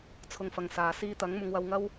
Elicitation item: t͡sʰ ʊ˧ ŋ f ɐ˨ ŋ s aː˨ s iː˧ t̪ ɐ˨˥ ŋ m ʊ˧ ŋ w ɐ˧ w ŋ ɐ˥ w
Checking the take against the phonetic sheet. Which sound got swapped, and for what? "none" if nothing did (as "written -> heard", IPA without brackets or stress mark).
none